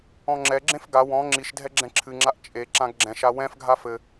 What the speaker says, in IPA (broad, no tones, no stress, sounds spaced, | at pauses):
ɔ̃ ŋ͡ǁ ɛ ɡ͡ǁ ẽ f ɡ a w ɔ̃ ŋ͡ǁ i ʃ dʱ ɛ ɡ͡ǁ ɛ̃ ǁʰ ɨ ŋ͡ǁ a ʔ t͡ʃʼ e ǁ ã ɡ ɡ͡ǁ ɛ̃ ʃ a w ɛ̃ f ɡʱ a f ɘ